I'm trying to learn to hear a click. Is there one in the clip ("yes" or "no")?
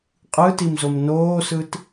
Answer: no